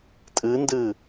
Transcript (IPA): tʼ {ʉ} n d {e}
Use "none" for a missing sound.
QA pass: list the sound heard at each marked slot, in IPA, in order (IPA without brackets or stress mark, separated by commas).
ɨ, ɨ